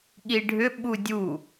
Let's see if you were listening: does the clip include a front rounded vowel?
yes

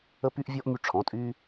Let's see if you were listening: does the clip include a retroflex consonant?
yes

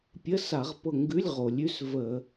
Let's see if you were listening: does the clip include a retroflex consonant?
no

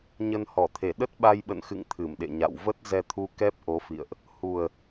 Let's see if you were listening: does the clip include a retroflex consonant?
no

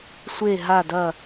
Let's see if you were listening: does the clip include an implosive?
no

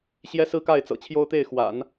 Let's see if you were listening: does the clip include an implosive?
no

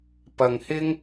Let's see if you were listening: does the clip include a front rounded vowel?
no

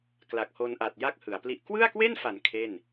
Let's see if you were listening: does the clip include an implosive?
no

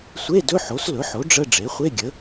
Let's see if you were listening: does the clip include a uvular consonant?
yes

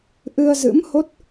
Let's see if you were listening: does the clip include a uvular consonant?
no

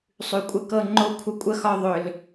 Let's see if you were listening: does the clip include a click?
yes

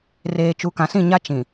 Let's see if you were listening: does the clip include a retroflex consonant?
no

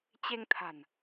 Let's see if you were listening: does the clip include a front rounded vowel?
no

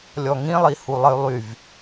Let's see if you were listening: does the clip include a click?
no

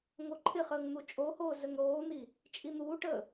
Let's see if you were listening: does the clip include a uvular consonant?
yes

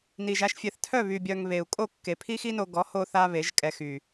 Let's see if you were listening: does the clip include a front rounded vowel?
yes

